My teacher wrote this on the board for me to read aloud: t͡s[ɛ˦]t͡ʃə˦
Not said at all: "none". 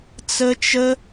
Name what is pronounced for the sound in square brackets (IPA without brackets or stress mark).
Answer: ə˦